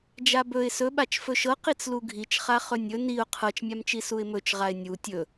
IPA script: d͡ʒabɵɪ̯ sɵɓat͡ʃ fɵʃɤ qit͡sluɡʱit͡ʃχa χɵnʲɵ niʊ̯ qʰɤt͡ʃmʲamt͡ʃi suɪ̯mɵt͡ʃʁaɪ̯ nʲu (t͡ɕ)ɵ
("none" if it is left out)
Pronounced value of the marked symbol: tʲ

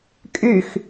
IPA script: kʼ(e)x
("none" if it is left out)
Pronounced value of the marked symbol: y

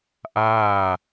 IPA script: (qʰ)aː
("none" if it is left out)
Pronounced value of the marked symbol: ʔ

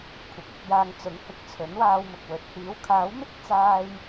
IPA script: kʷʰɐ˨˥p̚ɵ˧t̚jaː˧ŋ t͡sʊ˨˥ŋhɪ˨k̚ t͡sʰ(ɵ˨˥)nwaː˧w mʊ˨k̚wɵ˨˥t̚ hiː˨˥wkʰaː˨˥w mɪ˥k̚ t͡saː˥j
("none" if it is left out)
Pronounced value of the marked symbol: ɵ˨˥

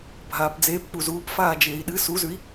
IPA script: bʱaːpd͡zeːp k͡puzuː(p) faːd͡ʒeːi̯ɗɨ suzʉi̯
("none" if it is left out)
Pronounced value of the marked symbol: p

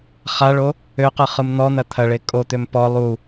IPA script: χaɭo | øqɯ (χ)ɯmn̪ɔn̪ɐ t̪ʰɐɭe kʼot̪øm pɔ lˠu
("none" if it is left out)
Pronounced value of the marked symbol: χ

